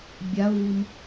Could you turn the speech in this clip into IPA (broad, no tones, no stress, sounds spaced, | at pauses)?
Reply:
bʲ a ʊ̯ v ɨ m